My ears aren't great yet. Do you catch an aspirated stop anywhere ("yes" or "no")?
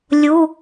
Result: no